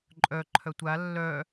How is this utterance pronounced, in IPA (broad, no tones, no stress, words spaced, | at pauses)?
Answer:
ǃʼœ ǃʰœtʷa lːœ